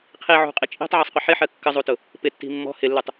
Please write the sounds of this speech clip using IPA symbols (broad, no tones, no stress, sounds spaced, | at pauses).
qʰ i ʕ ṳ qʼ i t͡ʃʼ i̤ tˤ ʕ i sˤ qʷ ɪ ħ ɪ ħ ɜ kː ə zˤ u t ʊ | p ɪ tː i̤ mː ɔ̤ h ɪ lː u tˤ